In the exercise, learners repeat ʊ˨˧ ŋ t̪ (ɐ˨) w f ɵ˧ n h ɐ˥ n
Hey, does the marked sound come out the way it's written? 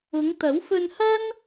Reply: no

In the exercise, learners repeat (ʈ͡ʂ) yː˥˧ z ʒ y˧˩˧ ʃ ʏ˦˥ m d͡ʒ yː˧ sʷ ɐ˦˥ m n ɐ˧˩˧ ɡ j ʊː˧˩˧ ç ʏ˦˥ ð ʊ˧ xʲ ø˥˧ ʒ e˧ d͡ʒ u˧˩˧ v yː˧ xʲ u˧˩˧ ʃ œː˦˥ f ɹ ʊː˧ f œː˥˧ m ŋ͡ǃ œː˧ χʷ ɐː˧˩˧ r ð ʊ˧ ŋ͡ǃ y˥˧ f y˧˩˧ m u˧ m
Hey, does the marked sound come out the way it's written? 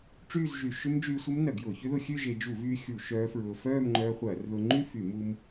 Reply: yes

